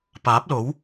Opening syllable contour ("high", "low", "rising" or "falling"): rising